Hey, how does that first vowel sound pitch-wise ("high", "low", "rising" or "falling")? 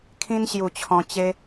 high